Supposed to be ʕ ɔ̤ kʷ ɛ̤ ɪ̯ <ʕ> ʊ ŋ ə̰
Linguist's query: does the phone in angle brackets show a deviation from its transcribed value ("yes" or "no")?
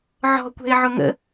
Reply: no